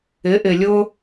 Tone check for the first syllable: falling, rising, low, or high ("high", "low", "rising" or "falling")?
rising